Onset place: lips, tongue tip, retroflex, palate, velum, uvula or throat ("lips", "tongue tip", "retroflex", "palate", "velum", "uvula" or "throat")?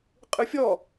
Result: uvula